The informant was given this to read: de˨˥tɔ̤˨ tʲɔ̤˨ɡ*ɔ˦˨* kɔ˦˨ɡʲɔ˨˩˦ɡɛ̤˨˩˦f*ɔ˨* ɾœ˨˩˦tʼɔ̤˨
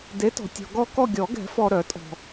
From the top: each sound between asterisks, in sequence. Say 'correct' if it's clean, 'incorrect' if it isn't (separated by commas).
correct, correct